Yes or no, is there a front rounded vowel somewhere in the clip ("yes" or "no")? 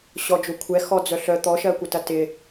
yes